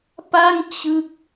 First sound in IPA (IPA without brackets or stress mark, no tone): p